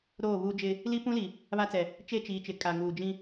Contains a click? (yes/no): no